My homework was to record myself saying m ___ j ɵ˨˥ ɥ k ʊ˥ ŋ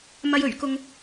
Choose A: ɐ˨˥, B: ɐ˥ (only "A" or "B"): B